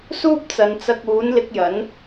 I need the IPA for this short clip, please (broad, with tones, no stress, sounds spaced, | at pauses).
s uː˥ p̚ t͡s ɐ˨˧ n t͡s ɐ˧ k̚ uː˨˥ n l ɪ˧ k̚ j ɐ˨˥ n